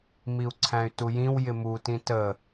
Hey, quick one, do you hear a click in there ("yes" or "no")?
yes